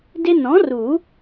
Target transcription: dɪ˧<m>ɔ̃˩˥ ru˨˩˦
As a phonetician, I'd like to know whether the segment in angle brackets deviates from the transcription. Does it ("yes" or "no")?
yes